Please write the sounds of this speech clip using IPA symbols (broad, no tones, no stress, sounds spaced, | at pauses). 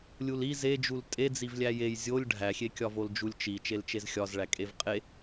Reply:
lʲ u l i z e d͡ʒ u l tʼ e d͡z i v lʲ æ j e j zʲ o lʲ ɖʱ æ xʲ e kʲ ɒ v o l d͡ʒ u lʲ t͡ʃ i t͡ʃ e l t͡ʃ e z xʲ ɒ z ɭ æ kʼ e v qʼ e